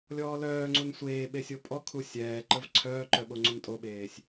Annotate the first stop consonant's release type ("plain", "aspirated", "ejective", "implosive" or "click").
click